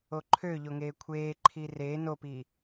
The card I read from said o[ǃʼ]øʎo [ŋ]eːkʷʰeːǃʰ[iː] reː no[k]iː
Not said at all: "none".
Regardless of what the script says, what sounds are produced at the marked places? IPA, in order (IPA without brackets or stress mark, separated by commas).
ǃʰ, ŋ, iː, p